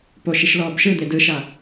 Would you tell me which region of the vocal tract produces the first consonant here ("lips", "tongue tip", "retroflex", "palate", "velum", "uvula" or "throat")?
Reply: lips